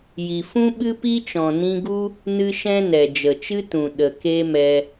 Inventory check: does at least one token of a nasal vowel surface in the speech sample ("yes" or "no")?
yes